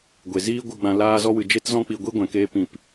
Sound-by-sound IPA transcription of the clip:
ɡʷ e˨ z iː˦ ɡʷ ɨ˧ ɡ͡b ã˧ l aː˧ z ɔ˧ w ɨ˨ d͡ʒ e˦ t z ɔ̃˦ k͡p i˧ ɡʷ i˦ ɡʷ ɛ̃˨ k eː˦ p ĩ˦˨ p

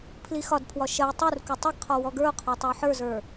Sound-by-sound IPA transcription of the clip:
pʰ l i x ɒ d pʰ w ɒ ʃ ɐ j tˤ u r k u tˤ ɐ ɡ qʰ ɔ w ɔ ɡ ə˞ o̯ qʰ ɒ tˤ ə˞ ħ ə˞ z ə˞

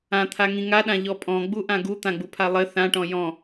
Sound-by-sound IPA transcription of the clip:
ã t̪ʰ a ŋ ĩ ŋ a ɗ ã ʎ ɔ pʼ ɔ̃ ɡ͡b u ʔ ã ɡ u t̪ ã ɡ͡b u pʰ a lˠ ɘ θ ã ʈ ɔ̃ j ɔ̃

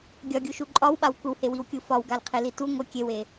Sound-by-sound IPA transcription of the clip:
ɡʲ ɒ ɡʲ u ʃ u ǃʼ ɒ w ɓ a w kʷ ə w h e w i w kʲ u f ɒ w ɡ a l qʰ e l i t u ŋʷ ə kʲ e w e

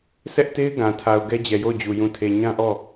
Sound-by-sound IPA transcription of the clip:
s ɛ˦ ʔ t e˦ ɪ̯ ɡ ã˨ tʰ a˨ ʊ̯ ɡ ɛ˦ d͡ʑ ɛ˨ j o˦˨ ʊ̯ d͡ʑ u˨ j ũ˨ tʰ e˨ ɲ ã˦ ʔ ɔ˦˨

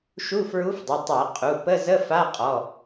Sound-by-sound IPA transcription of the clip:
ʃ u˧˥˧ f ɹ u˧˥ f dˤ ə˩˧˩ tˤ a˧˩˧ qʼ u˩˧˩ p ə˧˥˧ z ə˧˥˧ f a˧˥˧ qʼ ɔ˩˧˩

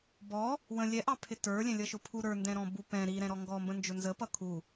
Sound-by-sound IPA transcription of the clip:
b ɔ | w ə̃ lʲ ɛ ʔ ɑ pʰ ɪ t ə˞ lʲ ɛ̃ lʲ ʌ ʃ ʊ pʰ u ɾ ə˞ n d ɛ̃ ɾ ɔ̃ b u p ɛ̃ ɾ i ɾ ɛ̃ ɾ ɔ ŋ ɡ ɔ m b ə̃ n d͡ʒ ʊ n z ə p ʌ kʰ u

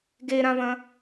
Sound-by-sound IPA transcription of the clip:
ɡ e ɾ ã v ɐ̃

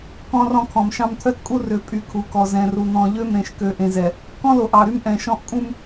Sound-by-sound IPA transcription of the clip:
k ɔ̃˦ r ɔ̃˦˨ kʰ ɔ̃˨ m ʃ ɑ̃˦ m t̪ʰ œ˦ t kʼ u˦ r ø˨ pʼ y˨ kʰ u˨ k ɔ˨ z ɛ̃˨ r u˨ n̪ ɔ̃˨ ʎ ø˦˨ m ɾ ẽ˨ ʃ k ø˨ ʔ ẽ˨ z ɛ˨ | k ɔ̃˦ l o˨ ʔ ɑ˨ ɾ y˦ m ʔ ɛ̃˨ ʃ ɔ̃˦ ʔ kʼ ũ˦ m

